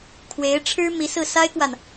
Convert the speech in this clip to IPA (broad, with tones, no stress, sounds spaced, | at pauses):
kʰ w e˧˥ ɪ̯ ʈ͡ʂʰ ɻ̩˥ m i˧˥ s ɹ̩˥˩ s a˥ ɪ̯ k w a˨ n